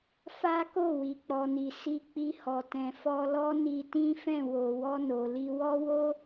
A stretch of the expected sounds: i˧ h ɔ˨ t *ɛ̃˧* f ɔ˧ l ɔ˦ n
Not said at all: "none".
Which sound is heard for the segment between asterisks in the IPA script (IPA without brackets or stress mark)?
ɛ̃˨